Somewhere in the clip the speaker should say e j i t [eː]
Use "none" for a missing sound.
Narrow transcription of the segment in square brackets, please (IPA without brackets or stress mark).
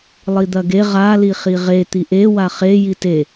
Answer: e